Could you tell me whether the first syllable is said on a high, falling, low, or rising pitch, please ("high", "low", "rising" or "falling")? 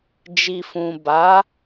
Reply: low